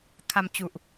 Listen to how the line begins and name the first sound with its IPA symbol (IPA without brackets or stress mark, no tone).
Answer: kʰ